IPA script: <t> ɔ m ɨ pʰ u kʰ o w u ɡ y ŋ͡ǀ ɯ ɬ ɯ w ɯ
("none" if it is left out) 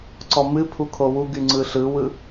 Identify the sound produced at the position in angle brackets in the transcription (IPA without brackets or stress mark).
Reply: ǀ